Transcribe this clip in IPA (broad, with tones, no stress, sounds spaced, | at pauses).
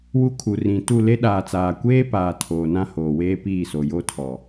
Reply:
w u˦ kʰ u˨ r ĩ˨ t u˦˨ l e˦ ɗ aː˨ t͡s aː˨ kʷ eː˦ p aː˨ tʰ oː˨ n ã˦ h oː˨ w eː˦ p iː˦˨ s o˨ j o˦ tʰ ɔ˨